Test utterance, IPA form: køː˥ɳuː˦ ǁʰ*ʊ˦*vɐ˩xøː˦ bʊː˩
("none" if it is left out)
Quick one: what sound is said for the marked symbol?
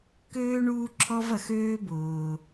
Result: ɔ˦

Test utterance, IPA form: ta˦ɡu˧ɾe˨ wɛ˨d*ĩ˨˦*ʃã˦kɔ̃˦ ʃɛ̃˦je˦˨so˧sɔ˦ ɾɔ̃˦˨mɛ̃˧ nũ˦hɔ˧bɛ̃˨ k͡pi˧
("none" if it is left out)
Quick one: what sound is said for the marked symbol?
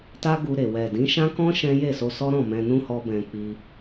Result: ĩ˨˦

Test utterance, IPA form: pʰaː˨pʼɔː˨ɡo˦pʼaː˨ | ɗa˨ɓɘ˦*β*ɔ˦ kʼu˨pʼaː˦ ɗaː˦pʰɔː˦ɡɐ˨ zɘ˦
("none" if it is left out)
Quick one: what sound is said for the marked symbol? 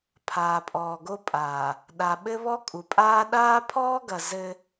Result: β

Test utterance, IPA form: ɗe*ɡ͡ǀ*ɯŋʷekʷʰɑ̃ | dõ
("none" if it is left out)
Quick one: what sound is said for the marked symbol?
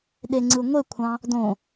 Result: ŋ͡ǀ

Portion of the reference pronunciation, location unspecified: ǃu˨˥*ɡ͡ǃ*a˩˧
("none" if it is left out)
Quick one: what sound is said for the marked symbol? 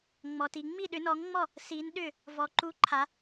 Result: ǃʰ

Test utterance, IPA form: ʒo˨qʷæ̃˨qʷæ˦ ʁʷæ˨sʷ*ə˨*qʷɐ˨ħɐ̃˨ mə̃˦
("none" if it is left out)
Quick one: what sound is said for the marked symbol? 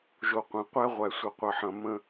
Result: ə˨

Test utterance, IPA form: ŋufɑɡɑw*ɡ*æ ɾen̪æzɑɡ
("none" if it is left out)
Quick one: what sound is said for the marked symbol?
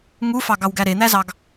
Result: ɡ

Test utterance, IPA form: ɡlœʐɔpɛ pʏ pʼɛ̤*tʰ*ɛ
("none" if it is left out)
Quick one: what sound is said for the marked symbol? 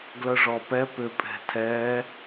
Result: tʰ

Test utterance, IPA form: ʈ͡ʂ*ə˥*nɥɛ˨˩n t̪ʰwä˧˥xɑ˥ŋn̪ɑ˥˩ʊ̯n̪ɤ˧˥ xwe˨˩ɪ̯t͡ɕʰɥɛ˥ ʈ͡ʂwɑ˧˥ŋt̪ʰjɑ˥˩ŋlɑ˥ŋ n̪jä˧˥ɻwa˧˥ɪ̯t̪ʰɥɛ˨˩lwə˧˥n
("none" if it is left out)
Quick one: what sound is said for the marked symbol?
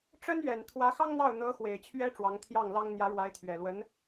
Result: ə˥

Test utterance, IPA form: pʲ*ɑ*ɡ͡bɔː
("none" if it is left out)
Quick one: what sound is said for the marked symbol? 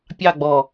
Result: ɑ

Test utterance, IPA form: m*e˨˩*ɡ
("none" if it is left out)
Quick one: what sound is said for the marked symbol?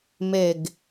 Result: e˨˩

